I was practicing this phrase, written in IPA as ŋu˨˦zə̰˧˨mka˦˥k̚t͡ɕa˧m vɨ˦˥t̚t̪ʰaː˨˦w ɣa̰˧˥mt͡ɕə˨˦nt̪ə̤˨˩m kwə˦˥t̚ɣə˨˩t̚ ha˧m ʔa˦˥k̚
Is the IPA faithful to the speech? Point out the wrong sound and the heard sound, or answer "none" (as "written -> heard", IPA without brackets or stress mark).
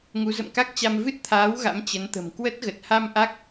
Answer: none